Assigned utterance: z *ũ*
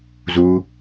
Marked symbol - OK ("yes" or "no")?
no